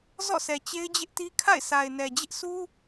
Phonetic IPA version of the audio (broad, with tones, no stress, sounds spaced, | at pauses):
z ɔ̰˦˨ s ɛ˨ t͡ɕ e˦ ɪ̯ d͡ʑ ɪ˦ ʔ t i˦ kʰ a̰˦˨ ɪ̯ sʰ a˨ ɪ̯ n ɛ˨ d͡ʑ ɪ˦ ʔ s u˦